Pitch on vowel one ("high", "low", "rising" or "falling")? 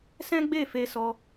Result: high